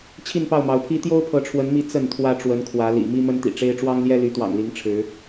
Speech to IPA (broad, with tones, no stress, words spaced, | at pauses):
t͡ɕʰi˥˨npɑ˥˨ʊ̯mɑ˨˦ʊ̯pʰi˦ t̪jo˦ʊ̯pʰɤ˨˦ʈ͡ʂʰwə˨˦nmi˨˦ t͡sə˥˨n t̪ʰwä˦ʈ͡ʂwə˨˦nkʰwä˨˦lḭ˨˩ mi˦mə˦nt̪ḭ˨˩ʈ͡ʂe˦ɪ̯ ʈ͡ʂwɑ˦ŋljɛ˦ly˨˦t̪wɑ̰˨˩ŋ li˨˦ŋʈ͡ʂʰɻ̩˨˦